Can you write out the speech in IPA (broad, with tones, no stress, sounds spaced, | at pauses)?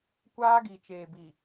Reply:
kʷ aː˦ ɡ i˨ t͡ʃ eː˨ b i˨